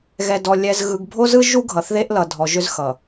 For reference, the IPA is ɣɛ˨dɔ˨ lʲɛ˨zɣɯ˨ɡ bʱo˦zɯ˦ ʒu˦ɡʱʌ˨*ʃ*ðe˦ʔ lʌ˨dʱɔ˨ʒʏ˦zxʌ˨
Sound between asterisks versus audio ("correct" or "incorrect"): incorrect